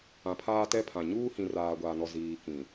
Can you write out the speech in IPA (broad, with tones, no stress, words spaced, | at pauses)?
ã˨pʰaː˦tɛ˦pʰã˨ ɲuː˦hĩ˨raː˨ ɡʷaː˨nɔ˨ ziː˨ kĩ˨